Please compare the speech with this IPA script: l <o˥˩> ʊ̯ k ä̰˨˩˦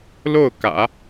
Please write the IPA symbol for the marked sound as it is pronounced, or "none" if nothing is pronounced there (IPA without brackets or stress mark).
o˥˩